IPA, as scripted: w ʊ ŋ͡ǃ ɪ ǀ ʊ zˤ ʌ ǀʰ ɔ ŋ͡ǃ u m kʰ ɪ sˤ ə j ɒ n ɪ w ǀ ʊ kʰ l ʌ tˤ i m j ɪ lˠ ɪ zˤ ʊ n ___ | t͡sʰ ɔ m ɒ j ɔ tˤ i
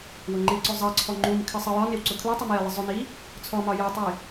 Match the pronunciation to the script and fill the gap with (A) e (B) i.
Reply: B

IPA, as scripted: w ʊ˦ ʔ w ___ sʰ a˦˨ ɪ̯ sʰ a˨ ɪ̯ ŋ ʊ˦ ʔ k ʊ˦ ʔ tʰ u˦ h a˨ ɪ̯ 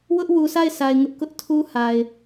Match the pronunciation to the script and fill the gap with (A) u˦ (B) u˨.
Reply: B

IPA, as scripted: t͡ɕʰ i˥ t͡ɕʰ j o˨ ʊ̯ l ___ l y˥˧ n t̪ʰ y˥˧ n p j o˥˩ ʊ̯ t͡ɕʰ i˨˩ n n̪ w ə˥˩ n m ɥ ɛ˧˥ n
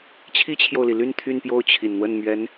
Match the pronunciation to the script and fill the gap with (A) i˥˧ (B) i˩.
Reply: B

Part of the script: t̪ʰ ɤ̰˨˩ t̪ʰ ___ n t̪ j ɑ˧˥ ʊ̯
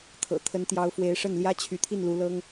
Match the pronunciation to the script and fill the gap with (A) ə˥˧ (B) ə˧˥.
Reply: B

